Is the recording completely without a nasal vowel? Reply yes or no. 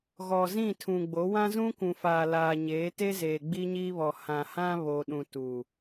no